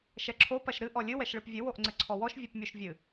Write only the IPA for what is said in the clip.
ʃɛǁʰo pɐʃɾɨ ʔɔlʲɨ wɛʃɭɨpvʲɨ woʔŋ͡ǀɘǀʰɔwɔʃ vʲupmʲuʃvʲɨ

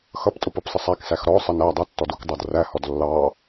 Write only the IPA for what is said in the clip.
xʌptʼʊp ʌpsˤəsˤæksæx ɾɔsˤə næ dˤʌtːɔd ukdˤɑdræhɔd lːɑ

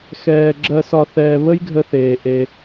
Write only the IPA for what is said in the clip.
xɛː˧ ɡ͡ǁɜ˧sɒ˧ θɛː˧ βə˦jɡʱə˧θeː˨ ʔe˧

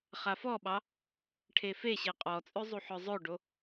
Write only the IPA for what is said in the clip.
χafɔɓɑ | ʈʰefeɕe qʼɔt͡sʼø zˤuħœzˤøɖo

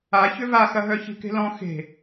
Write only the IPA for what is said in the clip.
a çʏvaxɐ ɦœçi̤ke̤lɔ̃ xe̤

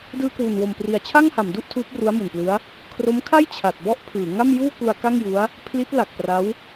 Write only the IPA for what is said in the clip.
dɯː˧kwu˨˩nwo˨˩mpri˨˩a̯ t͡ɕʰa˥˩ŋha˩˦mdu˥˩ʔ tʰuː˦˥p̚ru˦˥a̯mu˨˩nplɯ˦˥a̯ | kʰro˦˥mkʰa˥˩j t͡ɕʰa˨˩t̚bɔ˥˩ʔpʰɯː˩˦ ŋa˥˩mjuː˥˩ku˧a̯ ka˥˩ŋju˦˥a̯ | pʰli˦˥t̚ la˨˩k̚pra˦˥w

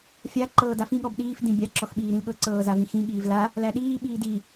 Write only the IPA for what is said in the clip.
fʲa ǃɤːdafĩ ɠɔbɗiːf dĩbʲa ǁɔxɓiːɾĩlɠɤ ǀɤːzavĩxĩ ɠiːvla | læɗiː ɓiːdi

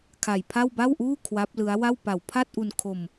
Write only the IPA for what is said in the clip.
kʰa˨˩jpʰa˥˩w ba˥˩wʔuː˥˩ kʰwa˦˥p̚lɯ˦˥a̯wa˥˩w pa˨˩wpʰa˥˩t̚ʔu˧nkʰo˧m

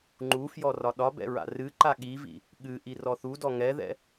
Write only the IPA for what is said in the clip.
ŋ͡ǃufjɔ rɒɗɒbɛ̰ ɹa̰rɨǃa ɠivḭ | ɠɨ ʔirɔθudɔ ŋɛðɛ̰

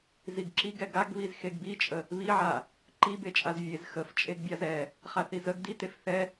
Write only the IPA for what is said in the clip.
ziɡǁiɡɛ ɡaɡβiz xeɡbit͡ʃʼə | βiʕa | ǃibe t͡ʃʼazvʲez xəft͡ʃʼeɡ bʲazɛ | χaθizəɡ ditef θɛ

